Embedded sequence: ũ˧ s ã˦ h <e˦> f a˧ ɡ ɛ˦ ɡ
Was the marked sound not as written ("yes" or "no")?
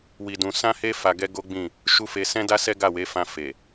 no